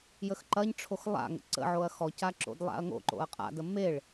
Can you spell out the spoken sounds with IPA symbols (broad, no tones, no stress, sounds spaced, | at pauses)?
j ə x ǃ ɐ ɲ ʈ͡ʂʰ o x lˠ a̰ ŋ ə̰ ǀ ə̰ ʕ o ɐ̯ x ɔ c a ǁ o̰ d lˠ a̰ ɐ̯ ŋ o̰ ǃ o̰ ɐ̯ qʼ a̰ d ə m e ɭ